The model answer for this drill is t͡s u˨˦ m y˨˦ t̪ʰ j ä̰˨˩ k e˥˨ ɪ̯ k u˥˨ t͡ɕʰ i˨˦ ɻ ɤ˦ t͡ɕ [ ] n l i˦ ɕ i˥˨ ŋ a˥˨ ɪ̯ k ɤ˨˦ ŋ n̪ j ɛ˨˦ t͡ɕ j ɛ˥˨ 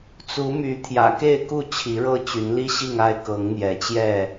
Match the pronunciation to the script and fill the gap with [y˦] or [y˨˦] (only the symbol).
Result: y˨˦